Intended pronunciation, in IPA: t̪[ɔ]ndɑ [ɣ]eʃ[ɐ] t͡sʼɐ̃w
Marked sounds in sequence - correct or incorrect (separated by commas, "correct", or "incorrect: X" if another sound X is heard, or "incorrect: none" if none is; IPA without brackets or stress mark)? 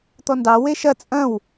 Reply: correct, incorrect: w, correct